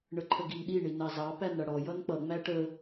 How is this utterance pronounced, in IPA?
ɳ ə ǃʰ ə ɡ i n ɗ i ɳ i n ɑ z ɑ p æ n ɽ ʌ ɽ ɔ j ʌ n k͡p ʌ ŋ͡m æ ʈ ə

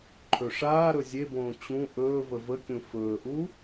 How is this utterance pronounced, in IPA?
ǃʰ ɵ ʂ aː ɾ ɵ zʲ e b õː t͡ɕ ũ ʔ ɵː v ə v ə kʲ ũ f ɵː ʔ u

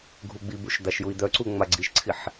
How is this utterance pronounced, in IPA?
ɡʱ u ɡ͡b i b u ʃ d̪ a ʃ j u i̯ d̪ œ ǀ u ŋ͡m a ɡ͡ǀ i ʃ ǀʰ i ħ

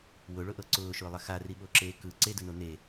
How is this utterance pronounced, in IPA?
w ʊ ɭ ʊ ʔ ɤ ǀ ʊː ʃ ʊː lˠ ɐ x a r i ɓ o ǁ eː k ɯ ǀ e d ʊ n o n e

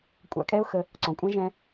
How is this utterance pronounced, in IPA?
kʷʼ a̰˧ kʼ ɛ˦ ʊ̯ x ə˧ | ǀ ɔ̃˨ kʷʼ ã˦ ʒ ɛ̃˧

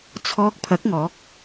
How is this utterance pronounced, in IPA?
t͡sʰ ɔː˧ k̚ pʰ ɐ˨˥ k̚ ŋ ɔː˨˥ k̚

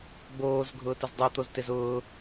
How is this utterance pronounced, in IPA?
ɡ͡b oː z ɡʱ ʊː t ə z dˤ i t̪ o z t e z ʊː

